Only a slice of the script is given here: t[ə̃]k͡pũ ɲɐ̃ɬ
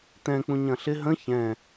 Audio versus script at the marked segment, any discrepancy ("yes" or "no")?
yes